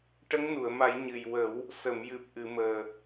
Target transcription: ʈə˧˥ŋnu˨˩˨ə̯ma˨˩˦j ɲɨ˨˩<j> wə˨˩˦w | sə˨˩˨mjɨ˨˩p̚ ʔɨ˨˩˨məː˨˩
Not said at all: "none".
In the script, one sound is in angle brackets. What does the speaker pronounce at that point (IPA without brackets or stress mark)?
j